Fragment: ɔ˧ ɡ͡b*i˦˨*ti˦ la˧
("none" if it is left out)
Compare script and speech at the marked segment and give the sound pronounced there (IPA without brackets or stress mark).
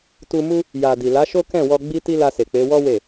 i˦